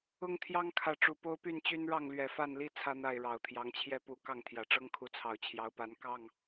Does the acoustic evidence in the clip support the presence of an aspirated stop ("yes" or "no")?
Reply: yes